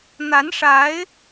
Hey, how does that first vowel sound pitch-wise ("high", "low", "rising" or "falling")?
rising